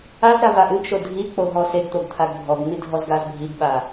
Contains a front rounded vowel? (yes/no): no